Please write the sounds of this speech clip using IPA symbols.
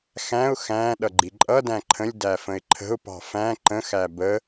x æ̃ ʊ̯ x æ̃ ɗ ʌ ɡ͡ǃ i ǃʼ ʌ d æ̃ ǃʰ ə̃ lʲ d æ f ə̃ ɪ̯ ǃʰ ə̤ ʊ̯ p ɑ̤ f æ̃ ǃ ə̃ x æ b ə

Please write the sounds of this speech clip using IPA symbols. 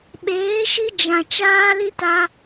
ɓ eː˨˦ ʃ i˧ d͡ʒ ã˨ t͡ʃ aː˦ l i˦ t a˧

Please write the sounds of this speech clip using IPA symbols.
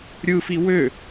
ɾʲ ɯ f i w ø

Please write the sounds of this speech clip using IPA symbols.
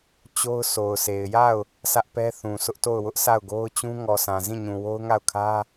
t͡ɕ o˦ ʊ̯ s o˨ ʊ̯ sʰ e˨ ɪ̯ j a˦˨ ʊ̯ | sʰ ä˦ ʔ p ɛ˦ θ ũ˨ sʰ ʊ˦ ʔ t o˦˨ ʊ̯ w ʊ˦ ʔ sʰ a˦˨ ʊ̯ ɡ o˦ ʊ̯ t͡ɕ ũ˦ ŋ ɔ˨ s ã˨ z ĩ˦˨ ɲ ũ˨ w o˦ ʊ̯ ŋ a˦˨ ʊ̯ kʰ ä˦

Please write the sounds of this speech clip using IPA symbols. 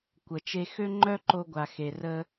kʷ ə˩ t͡ʃ e˧ x ø˥ ŋ͡ǃ œ˥ ǃ o˧ ɡʷ a˩ x e˩ r ə˧

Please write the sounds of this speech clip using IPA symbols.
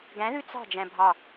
ɡ æ̃ ð ʉ t͡s ɑ̤ d͡ʒ æ̃ bʱ ɑ

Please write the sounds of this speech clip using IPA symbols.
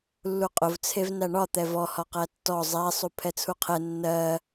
lː u qʼ ʊ v t͡sʰ e v n æ ɳ ɒ t̪ ɛ v ɔ h ɒ q æ tː ɔ zˤ æ sˤ u pʰ ɛ t͡sʰ u qʰ ɛ nː ɜ

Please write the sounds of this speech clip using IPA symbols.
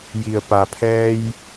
j i˩ ə̯ p a˩ pʰ ɛː˧ j

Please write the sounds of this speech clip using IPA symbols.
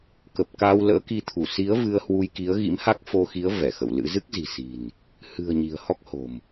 k ə˨˩ p̚ k a˧ w l ə̰ː˧˥ k i˧ t̪ʰ u˧˩ s i˨˦ ə̯ v ɨ˧ ə̯ h w u˧ j k i˨˦ ə̯ ɣ ḭ˧˥ m h a˦˥ k̚ f o˧ x i˨˦ ə̯ v ɛ˧˩ x ə̰˧˨ w l ɨ̰˧˥ z ɨ˦˥ k̚ z i̤˨˩ s i̤˨˩ n | h ɨ̤˨˩ ə̯ ɲ i̤˨˩ ə̯ h ɔ˦˥ k̚ h o̤˨˩ m

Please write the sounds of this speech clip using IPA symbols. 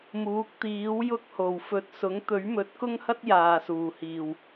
m uː˨˥ k̚ t̪ iː˨˥ w j ʊ˥ k̚ h o˨˩ w f ɵ˨ t̚ s ʊ˨˥ ŋ t̪ ɵ˨˥ ɥ m ɵ˨˥ t̚ k ʊ˥ ŋ h ɐ˥ t̚ j aː˨ s uː˨˩ h iː˨˩ w

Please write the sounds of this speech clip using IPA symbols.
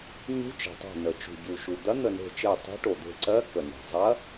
ɲ ṳ˧˥ t͡ʃ e̤˩ tˤ e̤˧˩ n ə˩ t͡ʃ ṳ˩ ɟ u˩ ʃ u˩ d̪ ɐ˧˥ n̪ ə˧˩ n e̤˧˩ t͡ʃ e˧˩ tˤ e̤˧˥ ʈ o˩ d̪ e̤˧˩ ǀ ɜ˧˥ k ə˩ n e̤˩ zˤ ɐ˧˥

